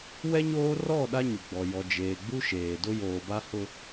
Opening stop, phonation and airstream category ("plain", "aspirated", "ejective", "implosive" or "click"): implosive